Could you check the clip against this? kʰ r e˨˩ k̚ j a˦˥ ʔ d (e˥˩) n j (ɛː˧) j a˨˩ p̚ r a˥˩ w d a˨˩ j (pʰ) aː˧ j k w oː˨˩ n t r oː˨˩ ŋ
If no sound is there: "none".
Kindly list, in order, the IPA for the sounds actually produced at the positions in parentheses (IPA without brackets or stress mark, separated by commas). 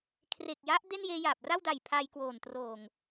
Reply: e˥˩, eː˧, pʰ